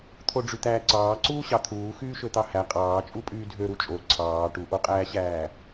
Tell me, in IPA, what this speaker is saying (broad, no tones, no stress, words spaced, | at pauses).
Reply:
t̪ʰoɖ͡ʐyt̪æːǀɑː ǀuːɕɑt̪ʰuː xyːʃøt̪ɑhæ qʼɑːt͡ʃʼu pʼyːdʱø ɾut͡ʃʼo ǀʰɑː ʈuʔoqʼæːɕæː